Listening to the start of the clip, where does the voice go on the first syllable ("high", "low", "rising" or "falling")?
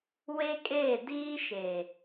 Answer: high